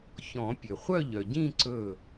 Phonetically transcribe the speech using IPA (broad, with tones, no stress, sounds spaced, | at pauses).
ç ɔ̃˨˩˦ pʲ ø˩ χʷ œ˥˧ ʎ œ˩ ɟ ĩ˥˧ ǀ ɵ˧˩